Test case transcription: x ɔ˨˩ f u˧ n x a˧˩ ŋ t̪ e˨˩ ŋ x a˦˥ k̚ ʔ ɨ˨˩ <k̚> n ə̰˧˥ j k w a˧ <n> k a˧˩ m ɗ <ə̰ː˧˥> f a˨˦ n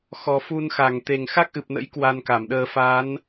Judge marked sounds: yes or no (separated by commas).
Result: no, yes, no